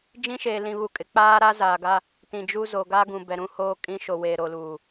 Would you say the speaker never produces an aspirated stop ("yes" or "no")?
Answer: yes